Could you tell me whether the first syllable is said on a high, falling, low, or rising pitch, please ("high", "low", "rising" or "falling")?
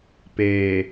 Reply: low